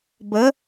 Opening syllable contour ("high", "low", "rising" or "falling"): rising